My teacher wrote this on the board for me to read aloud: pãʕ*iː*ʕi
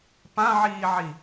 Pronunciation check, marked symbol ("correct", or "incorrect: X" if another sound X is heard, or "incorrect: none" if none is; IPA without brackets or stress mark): correct